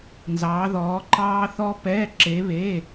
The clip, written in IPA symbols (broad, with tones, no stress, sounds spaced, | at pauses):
n z ɑː˩˧ ð ɔː˩˧ ǃ ɑː˧ θ ɔ˧ p ɛː˩˧˩ ǁ e˩˧ β eː˩˧˩